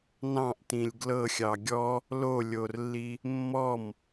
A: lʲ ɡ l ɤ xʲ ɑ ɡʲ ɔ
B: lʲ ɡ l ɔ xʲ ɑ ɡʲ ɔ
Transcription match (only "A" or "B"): A